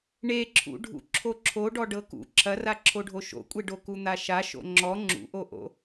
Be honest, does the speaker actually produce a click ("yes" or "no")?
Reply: yes